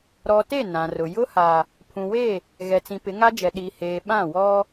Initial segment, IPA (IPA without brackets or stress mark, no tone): ɾ